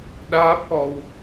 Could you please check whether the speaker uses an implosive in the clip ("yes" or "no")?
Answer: yes